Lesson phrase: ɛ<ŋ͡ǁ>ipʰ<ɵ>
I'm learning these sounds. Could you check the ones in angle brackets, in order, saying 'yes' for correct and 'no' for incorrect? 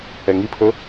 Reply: no, yes

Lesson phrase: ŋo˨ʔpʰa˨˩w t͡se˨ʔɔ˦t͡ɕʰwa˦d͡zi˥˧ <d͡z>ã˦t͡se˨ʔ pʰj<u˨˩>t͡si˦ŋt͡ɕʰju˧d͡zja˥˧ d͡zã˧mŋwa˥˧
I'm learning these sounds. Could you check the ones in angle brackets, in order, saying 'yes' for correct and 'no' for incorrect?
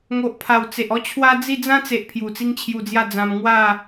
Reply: yes, yes

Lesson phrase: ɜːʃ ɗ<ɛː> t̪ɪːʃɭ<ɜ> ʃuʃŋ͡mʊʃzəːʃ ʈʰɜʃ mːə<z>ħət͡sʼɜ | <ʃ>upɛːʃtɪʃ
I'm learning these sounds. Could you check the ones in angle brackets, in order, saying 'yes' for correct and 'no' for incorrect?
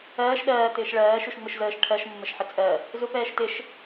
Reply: no, no, no, no

